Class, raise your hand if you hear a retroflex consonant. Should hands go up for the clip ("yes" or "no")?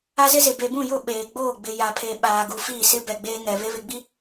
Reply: no